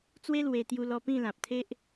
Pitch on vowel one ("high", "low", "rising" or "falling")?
high